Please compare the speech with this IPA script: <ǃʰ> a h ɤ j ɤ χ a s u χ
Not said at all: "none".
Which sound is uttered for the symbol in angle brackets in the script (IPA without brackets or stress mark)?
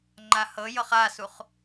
ŋ͡ǃ